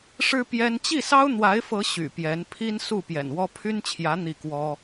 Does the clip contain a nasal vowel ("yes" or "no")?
no